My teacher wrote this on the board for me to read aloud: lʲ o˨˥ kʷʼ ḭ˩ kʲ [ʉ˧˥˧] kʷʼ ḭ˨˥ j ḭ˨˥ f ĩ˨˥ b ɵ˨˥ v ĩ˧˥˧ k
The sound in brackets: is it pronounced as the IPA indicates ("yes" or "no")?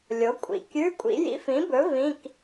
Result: yes